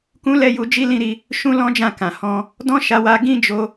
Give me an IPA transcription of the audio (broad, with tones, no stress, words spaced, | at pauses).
kũ˦lɛ˦˨ju˧ d͡ʒi˦lĩ˦˨ɾi˧ | ʃũ˦lɔ̃˦d͡ʒã˦˨kã˨ hɔ̃˧ | dɔ̃˦ʃa˧wa˧ ɡĩ˦d͡ʒo˧